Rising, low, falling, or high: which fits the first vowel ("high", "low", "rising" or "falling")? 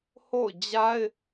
falling